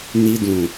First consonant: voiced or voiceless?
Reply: voiced